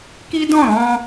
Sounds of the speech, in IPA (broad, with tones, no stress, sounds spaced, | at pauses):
k i˦ d ɔ̃˦˨ ɾ ɔ̃˧